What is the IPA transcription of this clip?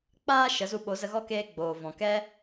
k͡p aː˦ ʃ ə˨˦ z u˧ ɓ o˨˦ z ə˧ ɣ ɔ˦ k eː˧ ɡ͡b oː˨ v ɔ̃˨ k ɛ˧

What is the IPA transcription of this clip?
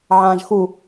ʕ ãː ʒ x u

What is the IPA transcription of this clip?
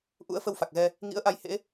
ʔ ṵ˧˥ ə̯ f ə˧ w f a˨˩ k̚ ɣ ɛ˧ | ŋ ḭ˧˥ ə̯ ʔ a˧ j h ḛ˧˥

